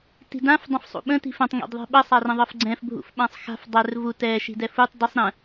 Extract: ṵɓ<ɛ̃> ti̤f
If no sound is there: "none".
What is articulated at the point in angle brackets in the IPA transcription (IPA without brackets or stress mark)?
ə̃